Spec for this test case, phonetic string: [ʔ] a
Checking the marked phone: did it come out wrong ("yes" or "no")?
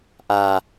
no